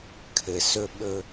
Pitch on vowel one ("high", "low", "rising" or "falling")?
low